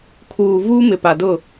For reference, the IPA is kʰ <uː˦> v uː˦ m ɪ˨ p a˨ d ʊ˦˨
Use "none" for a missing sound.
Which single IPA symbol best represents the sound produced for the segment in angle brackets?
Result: uː˨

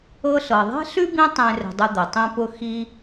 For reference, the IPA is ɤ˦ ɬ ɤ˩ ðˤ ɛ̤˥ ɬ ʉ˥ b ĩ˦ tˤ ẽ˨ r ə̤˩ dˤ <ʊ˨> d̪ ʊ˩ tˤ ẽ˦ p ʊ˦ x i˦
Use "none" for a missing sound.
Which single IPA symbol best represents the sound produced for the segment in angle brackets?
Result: ʊ˨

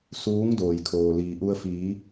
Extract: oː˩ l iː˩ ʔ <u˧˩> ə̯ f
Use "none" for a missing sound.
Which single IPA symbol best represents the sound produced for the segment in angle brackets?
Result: u˧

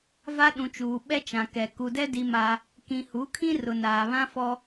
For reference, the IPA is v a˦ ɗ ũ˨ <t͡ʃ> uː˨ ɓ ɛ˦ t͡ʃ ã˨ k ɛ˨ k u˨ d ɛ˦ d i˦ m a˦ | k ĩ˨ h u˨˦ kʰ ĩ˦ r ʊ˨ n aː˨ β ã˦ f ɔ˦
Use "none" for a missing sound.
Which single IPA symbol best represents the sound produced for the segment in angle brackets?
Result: t͡ʃ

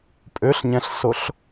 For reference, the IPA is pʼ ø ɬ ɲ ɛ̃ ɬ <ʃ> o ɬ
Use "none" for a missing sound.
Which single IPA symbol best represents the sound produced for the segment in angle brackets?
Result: s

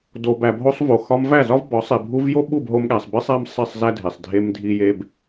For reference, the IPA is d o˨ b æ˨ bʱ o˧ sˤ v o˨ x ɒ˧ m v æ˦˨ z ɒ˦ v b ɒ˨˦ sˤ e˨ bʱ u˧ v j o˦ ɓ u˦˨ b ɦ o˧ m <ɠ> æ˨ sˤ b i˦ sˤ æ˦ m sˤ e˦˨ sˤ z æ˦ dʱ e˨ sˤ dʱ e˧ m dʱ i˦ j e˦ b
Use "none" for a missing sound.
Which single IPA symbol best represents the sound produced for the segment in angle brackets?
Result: ɠ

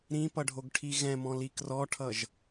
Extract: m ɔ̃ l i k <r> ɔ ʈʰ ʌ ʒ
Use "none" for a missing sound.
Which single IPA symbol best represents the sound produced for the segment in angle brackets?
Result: r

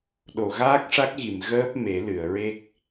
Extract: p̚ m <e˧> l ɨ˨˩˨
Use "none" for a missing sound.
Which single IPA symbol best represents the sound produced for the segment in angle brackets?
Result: e˨˩˦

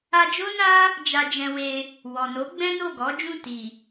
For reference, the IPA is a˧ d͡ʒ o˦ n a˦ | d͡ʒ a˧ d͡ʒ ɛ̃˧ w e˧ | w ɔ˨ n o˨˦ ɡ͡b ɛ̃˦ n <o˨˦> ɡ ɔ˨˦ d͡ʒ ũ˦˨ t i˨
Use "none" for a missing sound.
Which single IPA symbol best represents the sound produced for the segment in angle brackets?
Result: o˦˨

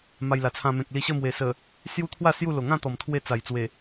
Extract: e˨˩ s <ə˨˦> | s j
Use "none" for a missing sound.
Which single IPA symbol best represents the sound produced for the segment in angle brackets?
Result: ə˨˩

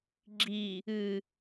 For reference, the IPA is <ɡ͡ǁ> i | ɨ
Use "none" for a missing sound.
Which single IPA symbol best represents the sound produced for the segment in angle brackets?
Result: ɡ͡ǁ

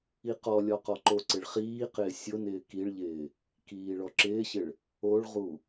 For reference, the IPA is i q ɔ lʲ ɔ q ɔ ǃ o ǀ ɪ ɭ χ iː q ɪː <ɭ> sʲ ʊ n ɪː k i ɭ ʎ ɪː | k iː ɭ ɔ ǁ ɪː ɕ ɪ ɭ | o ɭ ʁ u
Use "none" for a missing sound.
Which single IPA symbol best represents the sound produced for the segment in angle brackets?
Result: none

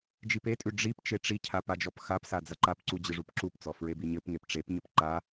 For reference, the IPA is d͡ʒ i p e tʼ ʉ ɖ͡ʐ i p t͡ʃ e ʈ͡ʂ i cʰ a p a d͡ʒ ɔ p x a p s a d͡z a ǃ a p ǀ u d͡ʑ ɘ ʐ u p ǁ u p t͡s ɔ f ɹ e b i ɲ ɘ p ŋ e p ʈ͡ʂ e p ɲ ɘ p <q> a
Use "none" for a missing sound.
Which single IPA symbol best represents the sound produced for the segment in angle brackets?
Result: ǃ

